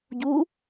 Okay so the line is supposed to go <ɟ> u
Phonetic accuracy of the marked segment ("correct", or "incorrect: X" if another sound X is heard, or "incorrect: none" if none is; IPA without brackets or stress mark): correct